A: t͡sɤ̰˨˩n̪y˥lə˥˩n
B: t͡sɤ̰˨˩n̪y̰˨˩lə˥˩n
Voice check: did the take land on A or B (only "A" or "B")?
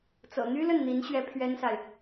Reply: A